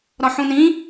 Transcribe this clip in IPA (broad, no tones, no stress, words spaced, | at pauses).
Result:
ɾɒħũnĩ